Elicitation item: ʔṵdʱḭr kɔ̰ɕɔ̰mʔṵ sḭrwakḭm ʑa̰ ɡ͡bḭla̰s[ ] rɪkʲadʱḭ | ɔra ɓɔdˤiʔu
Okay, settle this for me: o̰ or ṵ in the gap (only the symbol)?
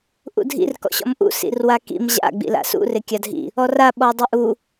ṵ